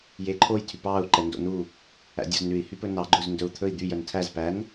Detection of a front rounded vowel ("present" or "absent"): present